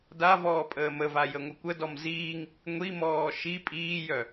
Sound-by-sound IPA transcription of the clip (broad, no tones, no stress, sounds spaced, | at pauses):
d a v ɔː pʼ əː m ə v a j ə ŋʷ ə kʷ ə d ɔ m z iː ŋ | ŋʷ i m ɔː ʃ i pʼ iː j œ